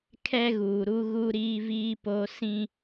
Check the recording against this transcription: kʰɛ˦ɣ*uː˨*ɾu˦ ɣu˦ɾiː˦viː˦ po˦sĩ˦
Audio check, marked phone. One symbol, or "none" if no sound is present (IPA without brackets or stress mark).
uː˨